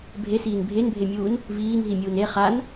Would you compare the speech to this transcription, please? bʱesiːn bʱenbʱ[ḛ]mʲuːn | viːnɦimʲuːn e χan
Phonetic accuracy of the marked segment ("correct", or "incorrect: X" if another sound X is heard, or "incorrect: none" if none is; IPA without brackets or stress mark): incorrect: e